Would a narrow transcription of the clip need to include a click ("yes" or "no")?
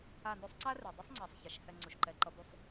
yes